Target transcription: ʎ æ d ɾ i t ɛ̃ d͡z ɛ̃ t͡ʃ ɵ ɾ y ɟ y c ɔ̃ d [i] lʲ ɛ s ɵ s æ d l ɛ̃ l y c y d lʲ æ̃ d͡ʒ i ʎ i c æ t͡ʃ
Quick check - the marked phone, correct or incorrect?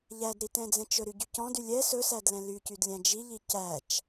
incorrect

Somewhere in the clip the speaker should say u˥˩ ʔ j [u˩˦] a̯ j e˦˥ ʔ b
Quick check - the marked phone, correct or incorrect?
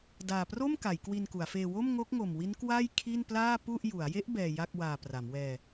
correct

